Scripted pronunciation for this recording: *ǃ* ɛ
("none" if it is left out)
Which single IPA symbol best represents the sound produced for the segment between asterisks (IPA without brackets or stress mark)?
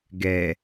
ɡ